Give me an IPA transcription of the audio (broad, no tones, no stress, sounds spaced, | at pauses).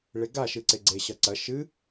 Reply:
ɭ e ɡ a ʃ ɨ ǀ e ɡ͡ǀ e ɕ ɐ ǀ ɐ ʃ ɨ